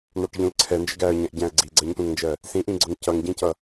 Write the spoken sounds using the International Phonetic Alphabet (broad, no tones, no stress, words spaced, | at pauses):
nɑʈʎũlǀʰɛ nd͡ʒəɡæə̯ɲɛ̃ʔɟæ̃ə̯ ɡ͡ǀiɡ͡ǀɜɲt̪ũŋnd͡ʒɜ | sĩʔĩɡ͡ǀʊŋ cʌŋɟĩcʌ